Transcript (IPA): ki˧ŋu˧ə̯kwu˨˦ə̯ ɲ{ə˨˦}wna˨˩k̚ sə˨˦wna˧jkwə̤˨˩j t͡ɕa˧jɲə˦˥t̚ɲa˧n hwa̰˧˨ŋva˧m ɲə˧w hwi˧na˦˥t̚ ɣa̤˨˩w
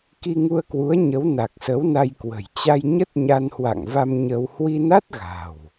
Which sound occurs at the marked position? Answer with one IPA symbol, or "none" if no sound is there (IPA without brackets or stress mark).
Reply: ə˨˦